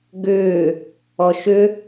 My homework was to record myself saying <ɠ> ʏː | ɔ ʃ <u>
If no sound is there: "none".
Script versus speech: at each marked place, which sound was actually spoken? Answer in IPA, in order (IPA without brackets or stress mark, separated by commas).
ɡ, ʏ